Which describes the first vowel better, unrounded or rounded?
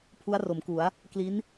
rounded